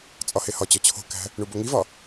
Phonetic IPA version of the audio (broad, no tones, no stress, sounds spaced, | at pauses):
t͡sʼ ɒ h e h ɒ t͡ɕ ɒ t͡ɕʰ o̤ k æ̤ | ɳ u b o ŋ i v ɒ